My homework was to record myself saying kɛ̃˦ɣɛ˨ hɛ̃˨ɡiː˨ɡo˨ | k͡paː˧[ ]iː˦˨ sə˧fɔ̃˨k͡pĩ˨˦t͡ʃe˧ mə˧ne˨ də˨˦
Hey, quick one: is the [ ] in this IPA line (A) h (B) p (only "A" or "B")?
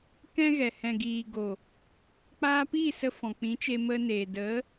B